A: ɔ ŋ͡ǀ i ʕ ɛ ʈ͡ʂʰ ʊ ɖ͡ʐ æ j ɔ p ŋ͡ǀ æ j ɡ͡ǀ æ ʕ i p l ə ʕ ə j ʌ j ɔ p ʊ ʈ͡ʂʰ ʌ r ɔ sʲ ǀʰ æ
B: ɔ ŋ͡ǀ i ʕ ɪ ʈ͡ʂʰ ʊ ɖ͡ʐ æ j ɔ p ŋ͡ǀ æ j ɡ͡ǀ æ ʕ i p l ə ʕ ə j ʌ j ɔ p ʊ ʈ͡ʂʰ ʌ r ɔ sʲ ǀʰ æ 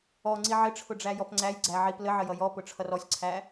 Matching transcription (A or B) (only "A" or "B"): B